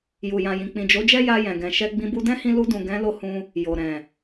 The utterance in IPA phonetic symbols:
j u˨ j ã˨ j ĩ˨ k͡p ĩ˨ d͡ʒ o˨˦ d͡ʒ ɛ˦ j a˧ j ɛ̃˨ ɡ ɛ̃˨ ʃ ɛ˧ ɡ͡b ĩ˧ b u˧ d ɛ̃˦ h ĩ˧ l u˧ d ũ˨ ɡ ɛ̃˨˦ l o˧ h ũ˧ | j o˨ ɾ ɛ̃˨

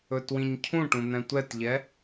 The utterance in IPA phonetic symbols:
ɵ t w ĩ ɲ cʰ ũ ʈ ũ n̪ ɛ̃ tʷ ɛ t ʎ ɛ

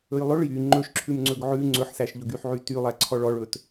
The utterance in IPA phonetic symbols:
ɵ j lˠ ɵ ɭ j y ŋ͡ǃ ɵ ʃ ǁʰ ʉ m ŋ͡ǀ ɵ ɡ ʕ ʉ ŋ͡ǀ ɵ ħ s æ ʃ ʎ ɵ ɡ y ħ ʕ y t y lˠ æ ǀʰ ɔ ɭ ɔ ɭ ɵ t

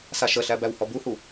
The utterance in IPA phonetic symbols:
s a ʃ ə ɬ æ b æ w h ɔ b u h u

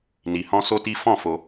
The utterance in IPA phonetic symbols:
n i˧ h ɔ̃˦ s o˦ t i˦ f ɔ̃˦˨ f o˧

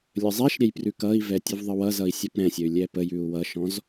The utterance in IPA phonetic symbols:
lʲ ə zˤ ɛ ʃ ɾʲ ɛ j p r ʉ k ʌ i̯ v ɛ tʲ ʉ v ðˤ ə w ʌ z ʌ i̯ sʲ ʌ p ɾ ɛ̃ sʲ ə y̯ lʲ ɛ p ə j ʉ u̯ w ʌ ʃ ɔ̃ z

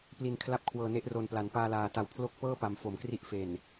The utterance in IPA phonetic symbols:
p l i˧ n kʰ l a˦˥ p̚ kʰ w ɤː˧ n e˦˥ ʔ r o˨˩ n p l a˩˦ n p aː˧ l aː˨˩ t a˨˩ w pʰ l o˦˥ k̚ p ɤː˥˩ p a˨˩ m f o˨˩ m k r i˦˥ ʔ f e˨˩ n

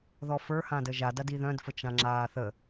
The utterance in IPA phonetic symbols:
ð ɔ f ə˞ h ã d ə ʒ a d a d i ð œ̃ d f ə t͡ʃ ã ŋ͡ǁ aː θ ə

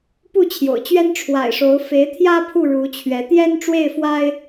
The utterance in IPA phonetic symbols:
p u˥˨ t͡ɕʰ j o̰˨˩ ʊ̯ t͡ɕ ɥ ɛ˦ n ʈ͡ʂʰ w a̰˨˩ ɪ̯ ʂ o˨˦ ʊ̯ f e˨˦ ɪ̯ t̪ʰ j ä˦ pʰ u˥˨ ɻ u˨˦ t͡ɕʰ ɥ ɛ˨˦ t̪ j ɛ˦ n ʈ͡ʂ w e˥˨ ɪ̯ f w a˦ ɪ̯

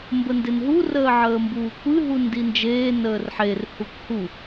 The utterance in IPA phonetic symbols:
m b ə n d e n ɦ u r əː ʕ əː m b uː kʷ ɨ ɦ u n d i n d͡ʒ eː n əː r ħ e r h u kʷ h u

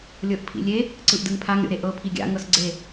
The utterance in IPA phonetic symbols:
lʲ ɤ ʔ pʰ ḭ lʲ e | ǀ ɯ ʔ d ɯ ŋ pʰ a ŋ ɾʲ o̰ ɾ e ʔ ɤ pʰ i ɡʲ a̰ ŋ ɤ s ɡ͡ǀ e

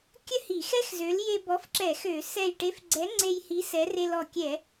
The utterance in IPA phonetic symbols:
kʲ ə˥ h i˧˩˧ x ɛ˥ x z ø˨˥ l j e˧ b ɔ˨˥ f ǁ ɛ˧˩˧ x ø˧˩˧ s ɛ˧˩ j ʈ e˨˥ f ɡ͡ǀ ɛ˨˥ ŋ͡ǀ e˧ j h i˨˥ s ɛ˨˥ r e˧ l ɔ˧˩ kʲ ɛ˧˩˧

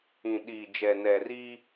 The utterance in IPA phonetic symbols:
ĩ˨ ɗ iː˨ d͡ʒ ɛ˨ n ɛ˨ r iː˦

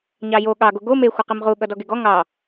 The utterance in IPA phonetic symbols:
ɲ ɑ j o ɠ ɑ ɡ o ɡ o m e xʷ ʌ q i m ʁ u ɠ ʌ d ɔ ɡ e ɡ ɔ ŋ ɑ

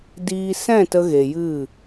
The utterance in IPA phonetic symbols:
d iː˧ s ɛ̃˦˨ t ə˧ ɣ e˨ j ɨ˦˨

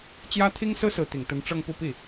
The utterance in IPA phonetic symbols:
t͡ɕ j ä˥ t̪ʰ i˥ ŋ s ɹ̩˥ s ɹ̩˧˥ t̪ i˨˩ ŋ t̪ ə˧˥ n ʈ͡ʂ ɤ˥˧ ŋ p u˥˧ p i˥˩

